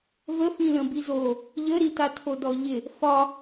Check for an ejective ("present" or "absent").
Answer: absent